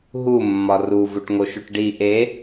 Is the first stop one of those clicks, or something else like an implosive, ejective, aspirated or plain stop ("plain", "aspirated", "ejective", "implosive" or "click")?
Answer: plain